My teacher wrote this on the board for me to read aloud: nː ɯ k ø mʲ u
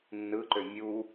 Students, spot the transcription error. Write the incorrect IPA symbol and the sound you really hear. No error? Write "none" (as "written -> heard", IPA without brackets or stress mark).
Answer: k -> ǃ